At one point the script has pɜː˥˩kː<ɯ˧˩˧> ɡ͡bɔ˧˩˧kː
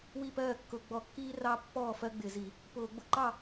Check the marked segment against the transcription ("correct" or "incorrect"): incorrect